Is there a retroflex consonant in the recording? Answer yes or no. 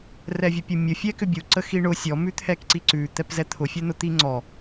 yes